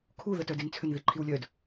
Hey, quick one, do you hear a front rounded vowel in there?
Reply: yes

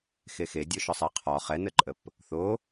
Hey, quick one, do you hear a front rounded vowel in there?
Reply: no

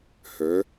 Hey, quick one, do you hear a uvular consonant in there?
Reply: no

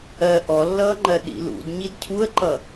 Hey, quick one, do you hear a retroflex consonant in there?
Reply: no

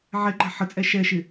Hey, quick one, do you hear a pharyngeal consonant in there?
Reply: yes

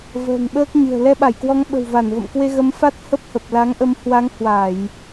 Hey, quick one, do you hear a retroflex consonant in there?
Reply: no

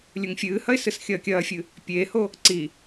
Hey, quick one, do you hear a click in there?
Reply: yes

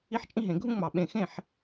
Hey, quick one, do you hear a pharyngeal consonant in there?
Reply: yes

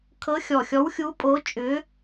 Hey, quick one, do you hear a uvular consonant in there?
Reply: no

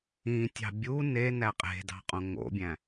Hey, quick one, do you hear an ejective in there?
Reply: yes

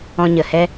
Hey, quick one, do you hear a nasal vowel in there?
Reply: yes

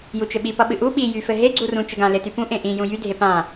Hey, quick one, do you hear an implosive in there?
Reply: yes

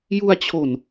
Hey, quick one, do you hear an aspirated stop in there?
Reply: yes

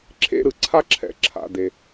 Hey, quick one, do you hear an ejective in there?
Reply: no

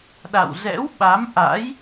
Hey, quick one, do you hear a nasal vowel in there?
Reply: no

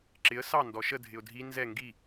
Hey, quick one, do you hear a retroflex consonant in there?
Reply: no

